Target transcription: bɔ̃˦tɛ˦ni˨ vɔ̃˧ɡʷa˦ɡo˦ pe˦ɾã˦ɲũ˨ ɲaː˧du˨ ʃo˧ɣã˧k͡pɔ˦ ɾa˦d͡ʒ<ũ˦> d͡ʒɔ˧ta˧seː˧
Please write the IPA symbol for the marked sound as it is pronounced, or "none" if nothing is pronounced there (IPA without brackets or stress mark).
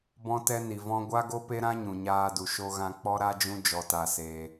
ũ˦